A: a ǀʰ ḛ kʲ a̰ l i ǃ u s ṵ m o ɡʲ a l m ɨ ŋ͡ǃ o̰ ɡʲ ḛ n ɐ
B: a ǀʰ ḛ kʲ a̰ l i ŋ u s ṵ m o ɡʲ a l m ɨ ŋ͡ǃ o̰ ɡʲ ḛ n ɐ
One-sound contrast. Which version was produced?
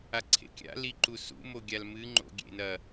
A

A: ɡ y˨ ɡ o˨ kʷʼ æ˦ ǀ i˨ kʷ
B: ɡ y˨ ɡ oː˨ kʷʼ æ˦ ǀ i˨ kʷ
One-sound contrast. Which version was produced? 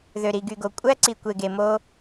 A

